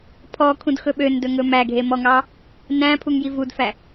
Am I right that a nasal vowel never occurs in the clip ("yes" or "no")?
no